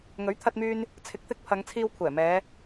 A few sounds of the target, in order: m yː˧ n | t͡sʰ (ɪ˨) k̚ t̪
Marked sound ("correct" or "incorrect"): incorrect